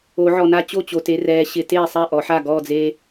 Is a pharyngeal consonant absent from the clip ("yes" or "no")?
no